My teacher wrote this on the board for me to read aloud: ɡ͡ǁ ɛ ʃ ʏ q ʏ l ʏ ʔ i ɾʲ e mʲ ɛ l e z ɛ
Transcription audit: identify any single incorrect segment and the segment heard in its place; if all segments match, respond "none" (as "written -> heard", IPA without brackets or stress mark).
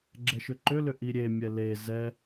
q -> ǃ